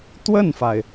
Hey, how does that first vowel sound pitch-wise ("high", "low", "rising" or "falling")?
falling